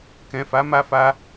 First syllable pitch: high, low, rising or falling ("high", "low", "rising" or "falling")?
low